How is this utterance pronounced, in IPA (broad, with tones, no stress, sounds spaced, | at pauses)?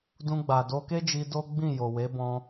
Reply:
d ũ˧ ɡ͡b a˨ d o˧ k e˦ d͡ʒ i˧ d o˦ ɡ͡b ĩ˦˨ j o˨ w e˨˦ b ɔ̃˧